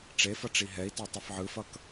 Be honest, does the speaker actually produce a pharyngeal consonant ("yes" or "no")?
yes